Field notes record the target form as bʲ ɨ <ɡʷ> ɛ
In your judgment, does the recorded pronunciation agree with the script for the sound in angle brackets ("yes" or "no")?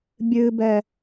no